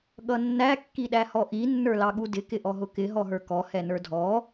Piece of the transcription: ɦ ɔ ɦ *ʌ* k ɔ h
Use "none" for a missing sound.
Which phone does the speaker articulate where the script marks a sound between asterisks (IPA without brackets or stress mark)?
ə˞